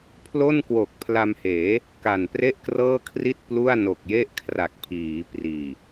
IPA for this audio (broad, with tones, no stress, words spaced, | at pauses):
pʰlo˥˩nkwo˨˩k̚pʰla˧mheː˩˦ | ka˨˩npre˥˩ʔkrɤː˥˩kʰri˥˩t̚ plu˥˩a̯no˨˩k̚je˥˩ʔ kʰra˨˩k̚pʰiː˩˦ priː˨˩